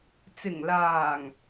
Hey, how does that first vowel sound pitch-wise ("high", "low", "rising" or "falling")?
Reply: low